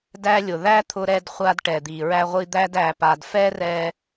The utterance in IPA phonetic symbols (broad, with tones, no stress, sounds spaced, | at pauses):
d æ˧ lʲ ʊ˩ ð æ˥ t̪ʰ ʊ˧ ɾ ɛ˧ d χʷ a˧ d ʈ ɛ˩ d̪ i˩ ɹ æ˧ ʁʷ i˧ d̪ æ˧ d æ˩ p a˩ d f ɛ˥ r ɛ˧